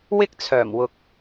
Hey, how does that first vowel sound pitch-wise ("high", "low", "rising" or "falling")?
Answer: high